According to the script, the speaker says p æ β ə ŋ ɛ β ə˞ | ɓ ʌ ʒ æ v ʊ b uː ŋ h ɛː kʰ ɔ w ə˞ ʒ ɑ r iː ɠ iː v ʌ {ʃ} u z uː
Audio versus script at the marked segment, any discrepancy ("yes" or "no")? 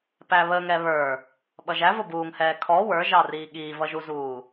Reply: yes